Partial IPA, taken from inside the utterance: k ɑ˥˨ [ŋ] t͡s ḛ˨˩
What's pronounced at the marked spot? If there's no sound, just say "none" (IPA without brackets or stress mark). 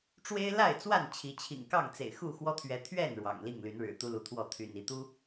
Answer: ŋ